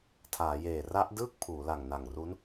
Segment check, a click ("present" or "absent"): absent